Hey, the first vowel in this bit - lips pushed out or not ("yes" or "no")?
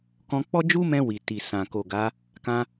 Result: yes